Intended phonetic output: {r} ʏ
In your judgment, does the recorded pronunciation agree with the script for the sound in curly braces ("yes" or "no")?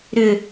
no